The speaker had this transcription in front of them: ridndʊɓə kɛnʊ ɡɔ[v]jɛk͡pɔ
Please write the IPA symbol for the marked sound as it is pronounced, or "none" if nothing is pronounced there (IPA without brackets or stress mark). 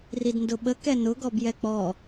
b